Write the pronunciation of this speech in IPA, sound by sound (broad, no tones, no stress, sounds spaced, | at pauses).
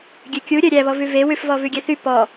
ɡʲ ø kʲ u ɾʲ œ ɾʲ æ β ɔ v ʉ v e w ʉ f v ɔ v ʉ ɡʲ ɛ θ y p ɔ